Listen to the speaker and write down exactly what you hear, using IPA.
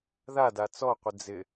ð a d a t͡s ɔ qʷ ɪ d͡z ɪ

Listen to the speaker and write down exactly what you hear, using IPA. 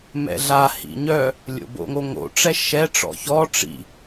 m ɛ̰ ɮ a h ḭ ɲ œ | lʲ o̰ b o̰ ŋ o ŋ o̰ ʈ͡ʂ ɛ ʃ ɛ ʈ͡ʂ ɔ̰ ç ɔ ʈ͡ʂ ḭ

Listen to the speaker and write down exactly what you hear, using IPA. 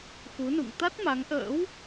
x u˨˦ n ṵ˧˨ ŋ t̪ a˦˥ t̚ m a˨˦ ŋ ʔ ə̰ː˧˥ w

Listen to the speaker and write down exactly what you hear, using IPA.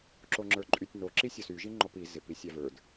ǁ o ŋ͡ǁ ə˞ ǃʼ y tʲ n o ǁ i sʲ ɔ s y ʒ i ŋ͡ǃ ɔ p i z ɪ p i sʲ a v ə˞ d

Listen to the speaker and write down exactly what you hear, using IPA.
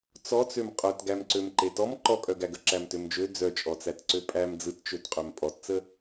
t͡s ɔ t͡s ø m qʼ œ t ɡ æ m ǀ ø m ǃ e t ɔ m ǃ ɔ kʼ œ ɡ æ ɡ ə ǁ æ m t ø m d͡ʒ ø d͡z œ t͡ʃʼ ɔ t͡s æ t ǀ ø pʼ æ m d͡z ɯ t t͡ʃ ø t qʼ ø m pʼ ɔ t t͡s ə

